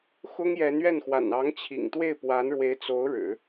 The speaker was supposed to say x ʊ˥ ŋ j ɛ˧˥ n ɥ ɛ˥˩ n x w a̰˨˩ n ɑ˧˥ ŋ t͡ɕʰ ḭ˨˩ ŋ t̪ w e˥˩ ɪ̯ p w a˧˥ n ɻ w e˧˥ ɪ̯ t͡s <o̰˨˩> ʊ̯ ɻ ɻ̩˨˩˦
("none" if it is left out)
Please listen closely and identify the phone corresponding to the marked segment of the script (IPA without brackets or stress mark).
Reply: o˧˥